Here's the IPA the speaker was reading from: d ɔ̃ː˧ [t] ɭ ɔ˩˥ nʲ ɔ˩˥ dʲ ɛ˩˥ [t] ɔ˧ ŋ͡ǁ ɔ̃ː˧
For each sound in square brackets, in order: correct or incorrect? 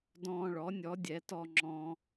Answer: incorrect, correct

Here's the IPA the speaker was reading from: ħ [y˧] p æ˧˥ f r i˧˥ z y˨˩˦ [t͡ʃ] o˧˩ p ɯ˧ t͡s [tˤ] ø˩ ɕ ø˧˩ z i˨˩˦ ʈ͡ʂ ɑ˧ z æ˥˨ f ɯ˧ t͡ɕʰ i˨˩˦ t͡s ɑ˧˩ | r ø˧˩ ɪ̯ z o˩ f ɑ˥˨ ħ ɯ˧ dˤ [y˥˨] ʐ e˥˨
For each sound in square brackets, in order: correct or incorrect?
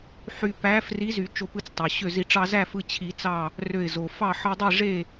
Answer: correct, correct, correct, incorrect

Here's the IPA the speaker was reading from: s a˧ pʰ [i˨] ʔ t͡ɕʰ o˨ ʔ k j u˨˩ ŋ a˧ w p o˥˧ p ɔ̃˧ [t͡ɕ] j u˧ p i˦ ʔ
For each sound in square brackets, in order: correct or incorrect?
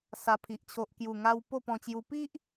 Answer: correct, correct

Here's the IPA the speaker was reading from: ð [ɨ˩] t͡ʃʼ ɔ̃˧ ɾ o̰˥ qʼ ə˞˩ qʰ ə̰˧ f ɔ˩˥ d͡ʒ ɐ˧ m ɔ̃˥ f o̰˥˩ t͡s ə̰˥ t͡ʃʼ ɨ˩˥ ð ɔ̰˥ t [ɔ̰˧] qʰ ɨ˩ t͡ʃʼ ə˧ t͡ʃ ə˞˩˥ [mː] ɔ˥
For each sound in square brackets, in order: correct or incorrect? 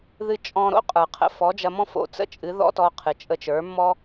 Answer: incorrect, incorrect, correct

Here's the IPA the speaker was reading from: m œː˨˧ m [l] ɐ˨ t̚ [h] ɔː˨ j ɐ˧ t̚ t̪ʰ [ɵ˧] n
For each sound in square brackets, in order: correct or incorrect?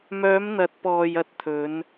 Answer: incorrect, incorrect, incorrect

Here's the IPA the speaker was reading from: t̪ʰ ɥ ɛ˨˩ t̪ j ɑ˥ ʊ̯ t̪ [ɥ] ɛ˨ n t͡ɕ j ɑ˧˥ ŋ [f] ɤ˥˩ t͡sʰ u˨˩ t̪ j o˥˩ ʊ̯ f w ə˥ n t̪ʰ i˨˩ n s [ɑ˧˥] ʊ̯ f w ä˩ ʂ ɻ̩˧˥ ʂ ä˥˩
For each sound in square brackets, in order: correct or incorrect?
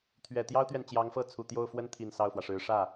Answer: correct, correct, incorrect

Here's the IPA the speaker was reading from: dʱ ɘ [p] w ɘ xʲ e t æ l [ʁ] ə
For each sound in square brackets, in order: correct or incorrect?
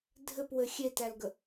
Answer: correct, incorrect

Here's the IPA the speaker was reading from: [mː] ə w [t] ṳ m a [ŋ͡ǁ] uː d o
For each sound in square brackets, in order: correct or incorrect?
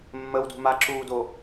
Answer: correct, incorrect, incorrect

